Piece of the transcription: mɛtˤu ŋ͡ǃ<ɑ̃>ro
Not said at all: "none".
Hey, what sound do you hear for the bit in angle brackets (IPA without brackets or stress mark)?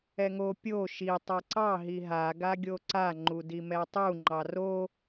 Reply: ɑ